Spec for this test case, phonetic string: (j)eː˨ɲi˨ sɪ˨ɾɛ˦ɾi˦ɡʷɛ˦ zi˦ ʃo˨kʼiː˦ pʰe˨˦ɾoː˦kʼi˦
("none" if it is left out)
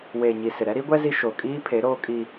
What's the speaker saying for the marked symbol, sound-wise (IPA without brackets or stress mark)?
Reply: w